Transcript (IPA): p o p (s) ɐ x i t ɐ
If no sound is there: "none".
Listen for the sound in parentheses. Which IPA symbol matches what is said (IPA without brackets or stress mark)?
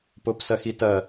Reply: s